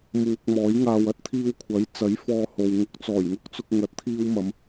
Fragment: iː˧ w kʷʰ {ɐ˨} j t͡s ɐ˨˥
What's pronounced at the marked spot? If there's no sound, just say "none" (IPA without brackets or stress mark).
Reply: ɐ˨˥